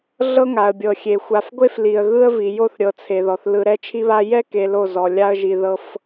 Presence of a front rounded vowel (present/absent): absent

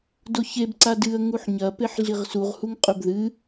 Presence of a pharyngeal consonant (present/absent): present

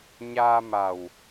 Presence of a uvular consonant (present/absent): absent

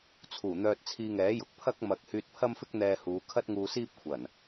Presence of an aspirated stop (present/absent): present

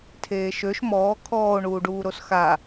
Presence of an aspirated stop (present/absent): present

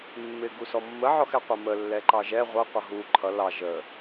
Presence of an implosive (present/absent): absent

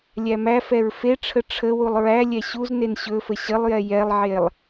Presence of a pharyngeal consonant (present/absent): present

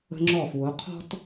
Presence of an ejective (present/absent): absent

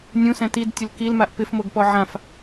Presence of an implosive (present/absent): absent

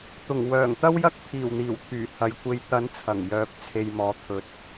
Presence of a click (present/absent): absent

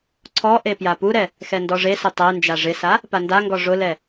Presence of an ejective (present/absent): absent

